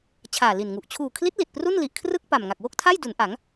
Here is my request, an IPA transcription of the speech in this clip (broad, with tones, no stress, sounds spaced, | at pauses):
t͡ɕʰ aː˨˩ l i˨˩ n ŋ u˨˩ ʔ t͡ɕʰ uː˨˩ kʰ l i˦˥ t̚ l i˨˩ t̚ p r u˥˩ n l i˨˩ ʔ kʰ r ɯ˥˩ k̚ p a˨˩ m ŋ a˨˩ k̚ w o˥˩ k̚ tʰ a˥˩ j d u˩˦ n ʔ a˩˦ ŋ